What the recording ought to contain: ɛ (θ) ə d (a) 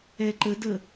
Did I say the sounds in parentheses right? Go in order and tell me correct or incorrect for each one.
incorrect: ǃ, incorrect: ə

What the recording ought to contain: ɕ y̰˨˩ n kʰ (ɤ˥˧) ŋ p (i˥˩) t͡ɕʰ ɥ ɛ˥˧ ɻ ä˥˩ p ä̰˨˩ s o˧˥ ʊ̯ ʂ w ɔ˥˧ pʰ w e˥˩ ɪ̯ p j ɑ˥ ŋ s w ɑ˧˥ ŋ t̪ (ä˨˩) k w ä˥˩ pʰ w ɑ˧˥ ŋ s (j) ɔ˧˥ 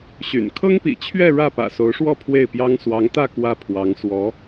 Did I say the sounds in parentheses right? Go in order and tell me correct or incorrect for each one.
incorrect: ɤ˥, incorrect: ḭ˨˩, incorrect: ä˥˧, incorrect: w

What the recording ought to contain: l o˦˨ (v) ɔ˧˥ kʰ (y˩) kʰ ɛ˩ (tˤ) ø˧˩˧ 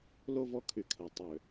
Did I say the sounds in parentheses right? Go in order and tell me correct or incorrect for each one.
correct, correct, correct

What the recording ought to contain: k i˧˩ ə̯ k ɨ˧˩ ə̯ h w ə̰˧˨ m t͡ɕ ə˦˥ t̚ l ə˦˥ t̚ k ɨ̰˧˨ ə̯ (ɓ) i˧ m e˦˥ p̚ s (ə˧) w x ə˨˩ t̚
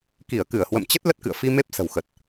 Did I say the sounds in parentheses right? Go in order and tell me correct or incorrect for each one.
incorrect: f, incorrect: ə̤˨˩

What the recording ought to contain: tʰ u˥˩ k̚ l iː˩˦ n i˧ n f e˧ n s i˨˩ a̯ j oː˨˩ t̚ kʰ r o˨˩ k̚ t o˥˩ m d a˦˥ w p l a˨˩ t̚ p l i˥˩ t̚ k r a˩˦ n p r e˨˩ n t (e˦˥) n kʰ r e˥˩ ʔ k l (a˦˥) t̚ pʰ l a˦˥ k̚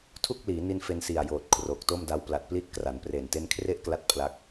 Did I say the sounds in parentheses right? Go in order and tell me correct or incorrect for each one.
correct, correct

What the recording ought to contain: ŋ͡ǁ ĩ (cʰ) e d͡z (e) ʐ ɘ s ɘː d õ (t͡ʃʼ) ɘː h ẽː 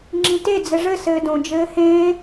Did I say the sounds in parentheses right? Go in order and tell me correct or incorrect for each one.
incorrect: t, incorrect: ɘ, incorrect: d͡ʒ

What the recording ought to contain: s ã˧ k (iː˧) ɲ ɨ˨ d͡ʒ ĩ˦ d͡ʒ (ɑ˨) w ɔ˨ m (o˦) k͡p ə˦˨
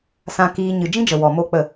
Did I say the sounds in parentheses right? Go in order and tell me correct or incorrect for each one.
correct, incorrect: ə˨, correct

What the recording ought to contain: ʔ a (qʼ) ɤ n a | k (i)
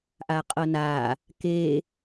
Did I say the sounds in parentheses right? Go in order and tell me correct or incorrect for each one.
correct, incorrect: e

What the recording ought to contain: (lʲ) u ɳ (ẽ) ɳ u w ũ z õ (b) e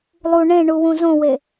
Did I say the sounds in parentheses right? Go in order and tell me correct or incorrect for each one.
incorrect: lˠ, correct, incorrect: w

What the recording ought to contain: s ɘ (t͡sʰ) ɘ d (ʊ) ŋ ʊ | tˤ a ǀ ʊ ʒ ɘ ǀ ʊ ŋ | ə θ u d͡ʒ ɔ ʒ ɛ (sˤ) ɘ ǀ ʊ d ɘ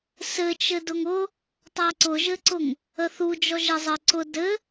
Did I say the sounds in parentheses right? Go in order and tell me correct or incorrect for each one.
incorrect: t͡ʃ, correct, incorrect: zˤ

